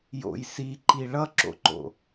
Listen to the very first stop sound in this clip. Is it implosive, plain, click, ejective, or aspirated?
click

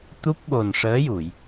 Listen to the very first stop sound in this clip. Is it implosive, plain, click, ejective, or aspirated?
plain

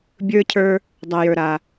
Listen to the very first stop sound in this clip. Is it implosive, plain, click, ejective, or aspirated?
plain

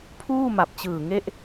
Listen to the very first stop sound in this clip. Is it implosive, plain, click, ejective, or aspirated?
aspirated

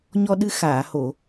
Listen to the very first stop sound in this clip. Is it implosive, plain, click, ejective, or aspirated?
implosive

